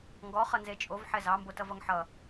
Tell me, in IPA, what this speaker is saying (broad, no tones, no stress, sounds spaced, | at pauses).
ŋ ɡ ɔ χ ʌ n z e t͡ʃʼ o v ħ ɛ z ɑ m b o t ʌ v ʌ ŋ ħ ʌ